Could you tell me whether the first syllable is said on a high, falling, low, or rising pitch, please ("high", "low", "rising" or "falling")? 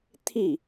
falling